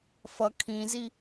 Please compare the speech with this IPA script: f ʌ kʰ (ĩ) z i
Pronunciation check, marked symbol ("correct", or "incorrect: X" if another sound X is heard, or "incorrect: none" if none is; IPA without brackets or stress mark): correct